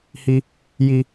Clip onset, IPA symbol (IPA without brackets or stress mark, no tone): h